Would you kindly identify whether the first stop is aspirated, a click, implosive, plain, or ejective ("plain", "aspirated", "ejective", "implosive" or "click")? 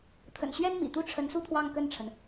aspirated